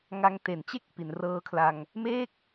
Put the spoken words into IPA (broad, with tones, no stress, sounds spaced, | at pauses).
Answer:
ŋ a˧ ŋ t e˨˩ n t͡ɕ e˥˩ k̚ p i˩˦ n r ɤː˧ kʰ l a˧ ŋ | m eː˥˩ k̚